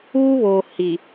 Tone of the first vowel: high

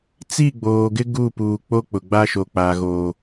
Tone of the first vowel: falling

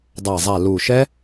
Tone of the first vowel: low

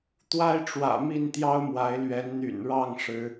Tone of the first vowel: high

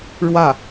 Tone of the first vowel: falling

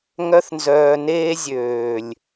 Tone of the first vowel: high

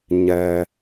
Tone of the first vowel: low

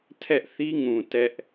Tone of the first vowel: high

